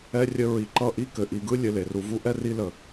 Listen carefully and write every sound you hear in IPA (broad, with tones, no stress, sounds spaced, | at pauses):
ɛ˥ rʲ ə˦ ɹ i˨ ǃ ʌ˦ ʔ i˦ k ɘ˩ ʔ i˨ ɡ ɯ˦ lʲ ɘ˨ l e˩ r u˨ v u˥ ʔ ɛ˥ r i˦ l ə˩